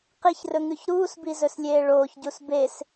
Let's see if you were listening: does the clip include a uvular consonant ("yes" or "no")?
yes